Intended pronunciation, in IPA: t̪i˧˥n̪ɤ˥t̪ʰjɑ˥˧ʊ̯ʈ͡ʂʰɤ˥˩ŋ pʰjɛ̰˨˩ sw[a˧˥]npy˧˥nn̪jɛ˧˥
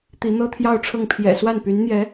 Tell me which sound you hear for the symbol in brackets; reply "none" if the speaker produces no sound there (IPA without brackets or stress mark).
a˥˩